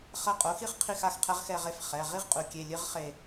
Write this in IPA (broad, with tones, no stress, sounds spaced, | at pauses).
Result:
χ ɐ˦˨ qʼ o˩˥ x i˥ χ qʰ i˦˨ x a˩˥ x qʰ ɛ˧˥ ʁ x ɛ˦˨ ʁ e˦˨ f χ ɛ˩˧˩ ʁ i˥ ʁ qʼ u˩˧ kʲ e˩˧˩ lʲ ɨ˥ ʁ χ e˦˨